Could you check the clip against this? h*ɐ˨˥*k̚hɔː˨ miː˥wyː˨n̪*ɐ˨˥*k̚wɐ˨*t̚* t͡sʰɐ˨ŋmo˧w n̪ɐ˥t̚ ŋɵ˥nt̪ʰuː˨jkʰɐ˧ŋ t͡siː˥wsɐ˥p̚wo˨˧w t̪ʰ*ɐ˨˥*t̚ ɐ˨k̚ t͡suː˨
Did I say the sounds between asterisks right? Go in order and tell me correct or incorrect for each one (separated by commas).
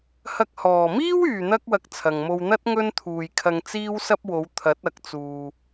incorrect, incorrect, incorrect, correct